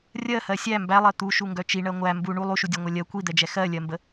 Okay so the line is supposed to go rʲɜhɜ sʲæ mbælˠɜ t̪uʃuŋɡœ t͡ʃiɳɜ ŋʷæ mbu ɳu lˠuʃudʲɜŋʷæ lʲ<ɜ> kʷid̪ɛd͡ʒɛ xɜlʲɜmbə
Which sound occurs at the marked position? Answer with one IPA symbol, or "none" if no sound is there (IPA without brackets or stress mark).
ɜ